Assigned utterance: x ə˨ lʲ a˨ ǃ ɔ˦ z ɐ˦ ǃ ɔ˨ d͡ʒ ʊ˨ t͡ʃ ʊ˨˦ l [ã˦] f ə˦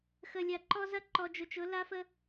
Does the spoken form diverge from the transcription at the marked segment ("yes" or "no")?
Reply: yes